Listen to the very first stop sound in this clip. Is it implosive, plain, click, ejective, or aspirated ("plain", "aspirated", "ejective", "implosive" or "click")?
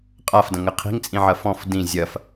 ejective